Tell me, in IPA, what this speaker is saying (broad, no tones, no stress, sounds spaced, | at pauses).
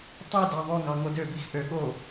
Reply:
tˤ i d ɑ ðˤ ø ŋ ɑ ŋ o d ø b i x ʔ ø ɠ o